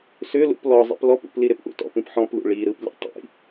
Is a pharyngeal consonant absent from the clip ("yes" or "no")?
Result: no